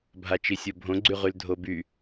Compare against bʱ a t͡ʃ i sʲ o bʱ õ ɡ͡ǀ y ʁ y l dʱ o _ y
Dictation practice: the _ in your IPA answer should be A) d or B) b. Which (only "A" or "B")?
B